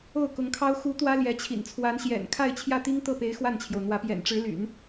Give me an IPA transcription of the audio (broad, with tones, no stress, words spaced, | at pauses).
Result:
o˥˩ʊ̯kʊ˧˥ŋkʰɑ˥ʊ̯ xu˧˥ t̪wä˥ljɛ˧˥t͡ɕʰḭ˨˩nt͡sʰwa˧˥n ɕjɛ̰˨˩nkʰa˥˧ɪ̯ t͡ɕʰjä˥˩t̪i˥ŋt̪ɤ˥˩pe˧˥ɪ̯ xwa˥˩nt͡ɕʰjo˩ʊ̯n̪wä˧˥ pjɛ̰˨˩nʈ͡ʂɻ̩˧˥ly̰˨˩˦n